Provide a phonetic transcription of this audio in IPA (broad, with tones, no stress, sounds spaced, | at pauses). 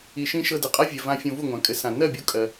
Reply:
i˨ ʃ ĩ˧ ʃ ɤ˧ d ɘ˨ qʼ a˦ vʲ ɜ˨ v ã˧ fʲ õ˧ v u˦˨ ŋʷ ã˨˦ kʼ ɘ˧ s ã˨ n ɜ˦˨ bʲ o˧ kʼ ɜ˧